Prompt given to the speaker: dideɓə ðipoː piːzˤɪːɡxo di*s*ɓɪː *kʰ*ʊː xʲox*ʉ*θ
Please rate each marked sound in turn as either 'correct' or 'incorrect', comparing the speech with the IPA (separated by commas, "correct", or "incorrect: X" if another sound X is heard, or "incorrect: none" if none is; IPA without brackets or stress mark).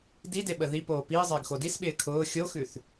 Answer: correct, correct, correct